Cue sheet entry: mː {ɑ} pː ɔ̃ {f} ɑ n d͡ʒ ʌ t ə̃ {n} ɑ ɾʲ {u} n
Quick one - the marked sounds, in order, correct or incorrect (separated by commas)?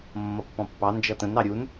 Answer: incorrect, incorrect, correct, correct